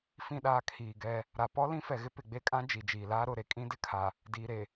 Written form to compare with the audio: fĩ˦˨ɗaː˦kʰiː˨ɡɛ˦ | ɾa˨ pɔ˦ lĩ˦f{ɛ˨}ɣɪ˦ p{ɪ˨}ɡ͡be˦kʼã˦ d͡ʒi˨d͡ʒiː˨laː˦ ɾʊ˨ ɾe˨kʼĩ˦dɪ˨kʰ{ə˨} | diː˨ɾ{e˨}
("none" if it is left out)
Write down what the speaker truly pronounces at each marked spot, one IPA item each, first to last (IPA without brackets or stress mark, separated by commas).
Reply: ɛ˨, ɪ˨, a˨, e˨